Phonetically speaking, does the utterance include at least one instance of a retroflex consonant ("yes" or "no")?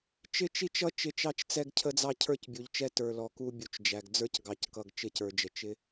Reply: no